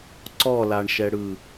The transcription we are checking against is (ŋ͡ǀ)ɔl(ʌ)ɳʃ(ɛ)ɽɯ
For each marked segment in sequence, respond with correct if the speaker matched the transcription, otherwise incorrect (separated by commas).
incorrect, incorrect, correct